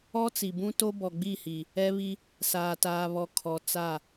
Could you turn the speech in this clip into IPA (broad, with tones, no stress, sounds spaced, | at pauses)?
ɔ˦ t͡s i˨ b ũ˦ t o˦ b ɔ˨ ɡ͡b i˦˨ h i˨ | ɛ˦ β i˦ | s aː˨ t aː˨ β ɔ˨ kʰ ɔ˨ t͡s a˦˨